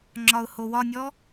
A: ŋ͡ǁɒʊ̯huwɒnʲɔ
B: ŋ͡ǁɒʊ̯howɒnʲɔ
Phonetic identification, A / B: B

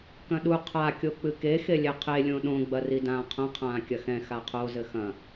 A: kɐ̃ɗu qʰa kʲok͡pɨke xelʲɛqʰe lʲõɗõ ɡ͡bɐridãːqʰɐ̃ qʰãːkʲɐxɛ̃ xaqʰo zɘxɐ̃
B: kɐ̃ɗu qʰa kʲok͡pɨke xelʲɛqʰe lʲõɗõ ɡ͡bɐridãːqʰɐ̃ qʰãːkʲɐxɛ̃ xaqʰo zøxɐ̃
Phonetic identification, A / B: A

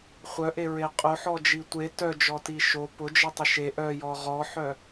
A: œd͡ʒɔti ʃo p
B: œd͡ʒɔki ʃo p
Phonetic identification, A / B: A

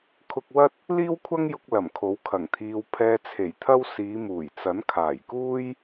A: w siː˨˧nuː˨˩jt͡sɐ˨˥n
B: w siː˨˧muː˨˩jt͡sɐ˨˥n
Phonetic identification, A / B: B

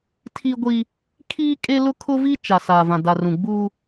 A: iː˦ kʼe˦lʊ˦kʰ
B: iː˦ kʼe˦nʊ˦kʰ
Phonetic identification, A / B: A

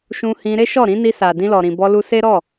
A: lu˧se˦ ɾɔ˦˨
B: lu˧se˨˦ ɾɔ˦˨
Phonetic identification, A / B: A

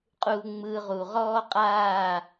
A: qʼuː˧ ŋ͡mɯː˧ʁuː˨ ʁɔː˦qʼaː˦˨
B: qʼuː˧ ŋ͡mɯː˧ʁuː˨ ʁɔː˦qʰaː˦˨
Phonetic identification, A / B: A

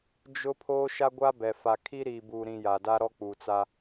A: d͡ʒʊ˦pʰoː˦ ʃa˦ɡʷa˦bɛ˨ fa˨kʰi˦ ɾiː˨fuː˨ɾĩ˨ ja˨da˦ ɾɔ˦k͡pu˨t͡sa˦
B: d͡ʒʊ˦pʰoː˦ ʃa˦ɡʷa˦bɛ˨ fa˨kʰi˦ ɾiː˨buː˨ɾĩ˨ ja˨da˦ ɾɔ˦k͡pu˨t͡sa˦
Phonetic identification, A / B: B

